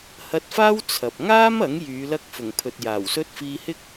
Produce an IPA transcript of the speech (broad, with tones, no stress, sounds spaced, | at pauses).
h ɐ˧ t̚ f aː˥ w t͡sʰ ɐ˨ p̚ ŋ aː˥ m ɐ˨˥ ŋ j yː˨˧ l ɐ˧ k̚ f ʊ˨˩ ŋ pʰ ɵ˨ t̚ j aː˨˩ w s ɵ˥ t̚ f iː˧ h ɪ˥ k̚